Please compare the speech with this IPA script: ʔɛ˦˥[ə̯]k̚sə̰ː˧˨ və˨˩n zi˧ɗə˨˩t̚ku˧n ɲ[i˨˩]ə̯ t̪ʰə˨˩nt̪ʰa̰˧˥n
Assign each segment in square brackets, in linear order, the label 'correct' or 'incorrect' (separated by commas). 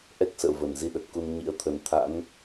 incorrect, incorrect